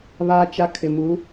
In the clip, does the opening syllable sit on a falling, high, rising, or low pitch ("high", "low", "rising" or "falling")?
high